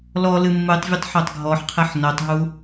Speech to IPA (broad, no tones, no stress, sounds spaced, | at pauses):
l ɔ l ɨ mː ɨ tˤ vʲ ɐ tˤ ħ o tˤ ɡʱ ɔ ħ qʰ e ħ n o tˤ ɦ u